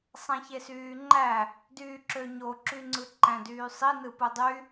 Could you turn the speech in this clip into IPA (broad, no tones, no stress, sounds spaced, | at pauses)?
sˤ æ̃ ç e s yː ŋ͡ǃ æ | d yː ǁ ø ɲ o ǁ y ŋ͡ǀ ɯ ǃ æ̃ d yː sˤ i n ɯ p u dˤ y